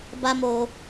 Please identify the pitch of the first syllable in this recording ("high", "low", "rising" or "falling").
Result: high